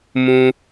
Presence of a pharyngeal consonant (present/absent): absent